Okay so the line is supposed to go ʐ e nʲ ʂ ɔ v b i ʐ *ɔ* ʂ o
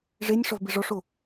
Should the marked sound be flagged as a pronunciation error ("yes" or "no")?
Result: no